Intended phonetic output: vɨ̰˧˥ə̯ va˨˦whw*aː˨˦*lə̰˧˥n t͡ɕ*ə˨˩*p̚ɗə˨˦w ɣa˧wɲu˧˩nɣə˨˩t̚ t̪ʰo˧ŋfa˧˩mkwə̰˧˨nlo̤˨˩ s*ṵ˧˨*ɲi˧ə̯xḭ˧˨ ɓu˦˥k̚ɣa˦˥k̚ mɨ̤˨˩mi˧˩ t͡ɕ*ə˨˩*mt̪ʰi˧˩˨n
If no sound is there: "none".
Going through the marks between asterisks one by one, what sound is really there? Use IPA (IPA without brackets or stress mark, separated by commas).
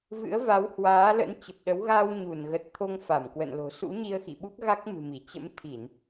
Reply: aː˨˦, ə˨˩, ṵ˧˥, ə̰˧˥